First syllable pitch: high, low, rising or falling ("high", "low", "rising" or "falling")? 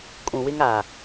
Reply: low